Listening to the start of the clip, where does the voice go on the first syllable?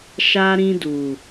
high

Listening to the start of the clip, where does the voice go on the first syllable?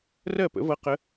falling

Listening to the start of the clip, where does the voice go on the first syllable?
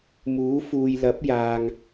rising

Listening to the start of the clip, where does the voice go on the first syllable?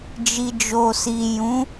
low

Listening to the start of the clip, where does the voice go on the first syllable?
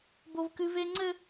high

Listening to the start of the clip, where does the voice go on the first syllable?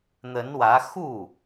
rising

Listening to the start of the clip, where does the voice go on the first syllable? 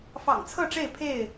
low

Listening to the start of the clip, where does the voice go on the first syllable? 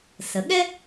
rising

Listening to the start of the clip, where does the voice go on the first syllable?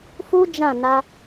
high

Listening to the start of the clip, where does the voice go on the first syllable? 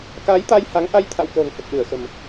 rising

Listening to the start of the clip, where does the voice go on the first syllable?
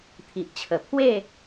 low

